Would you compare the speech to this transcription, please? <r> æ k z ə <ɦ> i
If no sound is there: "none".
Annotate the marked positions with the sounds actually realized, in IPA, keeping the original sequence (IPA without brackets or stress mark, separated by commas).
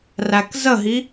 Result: r, ɦ